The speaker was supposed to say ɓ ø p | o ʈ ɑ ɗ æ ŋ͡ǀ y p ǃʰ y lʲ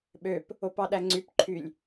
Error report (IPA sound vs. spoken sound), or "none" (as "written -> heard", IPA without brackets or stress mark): ʈ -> p